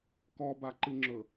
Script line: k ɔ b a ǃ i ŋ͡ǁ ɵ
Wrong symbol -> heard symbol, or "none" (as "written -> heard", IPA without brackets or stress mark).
none